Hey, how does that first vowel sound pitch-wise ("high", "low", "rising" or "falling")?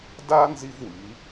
high